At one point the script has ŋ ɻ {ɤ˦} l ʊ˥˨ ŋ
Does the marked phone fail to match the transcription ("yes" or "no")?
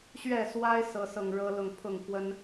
no